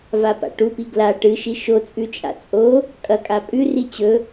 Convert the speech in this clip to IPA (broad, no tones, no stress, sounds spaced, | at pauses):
v a p a̰ ʈ u p i ɡ l a ʈ ɨ ʃ i ʃ o t͡sʼ ʉ t͡ʃʼ a̰ t͡sʼ o | kʼ ɐ kʼ a pʼ ʉ r i t͡ɕ ɵ